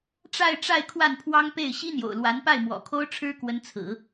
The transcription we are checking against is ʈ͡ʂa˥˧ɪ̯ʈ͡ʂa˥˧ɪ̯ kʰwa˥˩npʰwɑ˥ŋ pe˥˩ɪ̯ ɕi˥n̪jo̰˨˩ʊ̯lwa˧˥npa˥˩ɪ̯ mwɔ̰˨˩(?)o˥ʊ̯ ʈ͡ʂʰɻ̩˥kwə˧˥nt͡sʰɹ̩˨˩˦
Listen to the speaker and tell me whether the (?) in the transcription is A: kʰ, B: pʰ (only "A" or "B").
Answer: A